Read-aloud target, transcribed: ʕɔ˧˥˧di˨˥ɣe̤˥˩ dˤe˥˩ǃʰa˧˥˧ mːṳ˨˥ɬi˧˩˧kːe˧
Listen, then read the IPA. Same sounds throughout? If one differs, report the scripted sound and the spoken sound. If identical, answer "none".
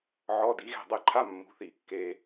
ɬ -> θ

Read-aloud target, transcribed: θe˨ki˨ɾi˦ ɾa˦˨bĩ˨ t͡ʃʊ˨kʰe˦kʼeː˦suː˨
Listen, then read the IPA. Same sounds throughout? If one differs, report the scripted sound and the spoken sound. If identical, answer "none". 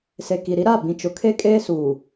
θ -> s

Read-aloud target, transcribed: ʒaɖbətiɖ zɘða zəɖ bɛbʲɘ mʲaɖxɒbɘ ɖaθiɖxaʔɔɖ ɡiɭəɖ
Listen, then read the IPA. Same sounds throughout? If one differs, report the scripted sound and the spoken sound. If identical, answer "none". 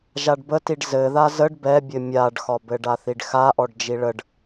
ɡ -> d͡ʒ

